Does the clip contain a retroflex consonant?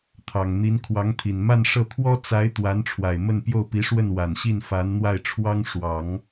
yes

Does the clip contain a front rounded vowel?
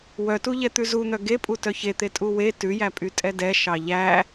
yes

